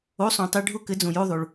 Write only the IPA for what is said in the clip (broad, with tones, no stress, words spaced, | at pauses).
o˨˥sˤõ˩tˤɘ˧˥˧ ɖʱʊ˥˩kɘ˨˥ d͡zõ˩jo˧˥˧ðˤo˩ɭ